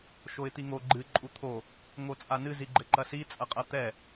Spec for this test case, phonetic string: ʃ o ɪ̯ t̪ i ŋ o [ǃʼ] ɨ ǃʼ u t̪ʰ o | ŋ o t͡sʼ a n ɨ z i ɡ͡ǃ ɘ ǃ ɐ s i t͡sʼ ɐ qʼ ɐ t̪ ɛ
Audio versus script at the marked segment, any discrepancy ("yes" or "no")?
yes